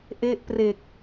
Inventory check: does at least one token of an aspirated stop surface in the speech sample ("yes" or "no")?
no